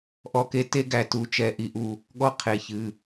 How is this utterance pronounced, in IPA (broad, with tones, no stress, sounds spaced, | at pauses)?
ʔ ɔ˦ k e˦ t e˦ ɡ æ˧ t u˨˦ t͡ʃ ɛ˧ ʔ i˧ ʔ u˧ | ɠ ɔ˦ qʰ e˧ ç ɨ˧